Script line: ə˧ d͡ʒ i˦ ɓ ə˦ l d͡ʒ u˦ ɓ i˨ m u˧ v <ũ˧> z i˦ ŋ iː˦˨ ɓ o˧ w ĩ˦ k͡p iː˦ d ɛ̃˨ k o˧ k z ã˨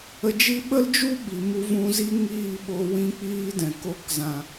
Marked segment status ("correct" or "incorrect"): correct